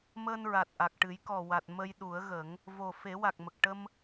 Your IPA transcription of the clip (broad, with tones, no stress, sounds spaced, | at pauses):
m əː˧ n ɹ a˨˩ t̚ ʔ a˨˩ k̚ ʈ ɨ˨˩˦ j k ɔ˨˩ w a˨˩ t̚ m ə˧ j ɗ u˨˩˦ ə̯ ɣ ə˨˩˦ ŋ | v o˨˩ f e˨˩˦ w a˨˩ k̚ m ə˨˩ k̚ ʈ ə˧ m